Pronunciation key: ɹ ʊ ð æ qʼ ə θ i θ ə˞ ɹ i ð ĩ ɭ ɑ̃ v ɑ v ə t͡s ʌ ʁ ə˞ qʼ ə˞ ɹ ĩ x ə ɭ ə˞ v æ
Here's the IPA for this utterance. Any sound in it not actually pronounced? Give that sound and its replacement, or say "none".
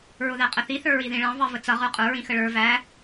none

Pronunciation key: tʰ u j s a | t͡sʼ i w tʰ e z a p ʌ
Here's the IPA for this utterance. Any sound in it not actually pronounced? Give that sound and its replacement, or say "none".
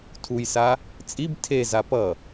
w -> b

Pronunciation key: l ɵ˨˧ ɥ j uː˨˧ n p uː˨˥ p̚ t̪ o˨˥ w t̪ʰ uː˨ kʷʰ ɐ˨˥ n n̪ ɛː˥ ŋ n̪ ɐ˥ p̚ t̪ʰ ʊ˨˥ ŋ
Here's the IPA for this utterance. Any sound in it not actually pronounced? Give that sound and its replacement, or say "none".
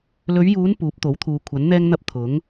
none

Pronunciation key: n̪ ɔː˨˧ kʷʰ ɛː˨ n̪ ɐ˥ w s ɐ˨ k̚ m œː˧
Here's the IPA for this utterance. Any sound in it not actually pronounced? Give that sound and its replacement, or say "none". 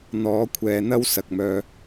none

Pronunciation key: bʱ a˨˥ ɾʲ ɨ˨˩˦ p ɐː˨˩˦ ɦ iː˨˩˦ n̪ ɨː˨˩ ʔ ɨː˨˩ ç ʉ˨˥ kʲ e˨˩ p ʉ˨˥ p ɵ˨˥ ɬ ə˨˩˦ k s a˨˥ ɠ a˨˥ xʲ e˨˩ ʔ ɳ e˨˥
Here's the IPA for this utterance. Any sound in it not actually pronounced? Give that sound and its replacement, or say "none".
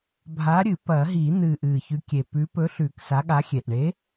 ə˨˩˦ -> ʉ˨˩˦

